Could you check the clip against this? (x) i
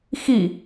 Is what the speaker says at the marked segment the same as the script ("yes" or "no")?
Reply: yes